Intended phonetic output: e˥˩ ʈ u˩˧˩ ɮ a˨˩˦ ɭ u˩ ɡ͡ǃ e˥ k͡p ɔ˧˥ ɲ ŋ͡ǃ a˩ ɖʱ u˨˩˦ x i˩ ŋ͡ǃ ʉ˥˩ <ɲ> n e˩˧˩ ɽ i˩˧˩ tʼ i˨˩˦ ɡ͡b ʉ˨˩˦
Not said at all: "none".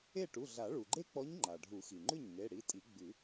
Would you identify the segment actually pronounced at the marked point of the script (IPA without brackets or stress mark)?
ɲ